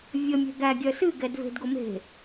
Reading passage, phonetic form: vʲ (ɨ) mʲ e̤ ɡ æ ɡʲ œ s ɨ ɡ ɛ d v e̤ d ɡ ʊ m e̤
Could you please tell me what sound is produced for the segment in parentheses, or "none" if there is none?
ə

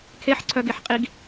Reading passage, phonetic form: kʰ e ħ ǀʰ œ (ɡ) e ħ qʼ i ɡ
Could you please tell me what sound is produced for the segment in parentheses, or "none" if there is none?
ɡ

